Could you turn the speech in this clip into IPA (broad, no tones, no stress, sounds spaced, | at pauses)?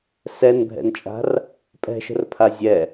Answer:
s ɛ n bʱ ɛ̰ n t͡ʃʼ a̤ r | pʼ ɛ̤ ʃ ə̤ r pʰ a zʲ ɛ